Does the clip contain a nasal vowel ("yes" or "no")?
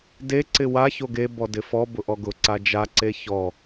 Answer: no